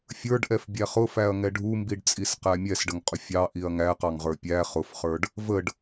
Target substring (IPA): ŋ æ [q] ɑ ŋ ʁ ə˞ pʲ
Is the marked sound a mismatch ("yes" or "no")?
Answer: no